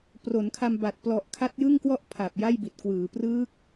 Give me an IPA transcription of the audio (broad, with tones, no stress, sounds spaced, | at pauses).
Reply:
p r o˩˦ n kʰ a˧ m b a˨˩ t̚ p l ɔ˨˩ ʔ kʰ a˦˥ t̚ j ɯ˥˩ ŋ k w ɔ˥˩ ʔ pʰ a˨˩ p̚ j a˥˩ j b i˨˩ t̚ k w ɯː˩˦ p r ɯː˦˥ k̚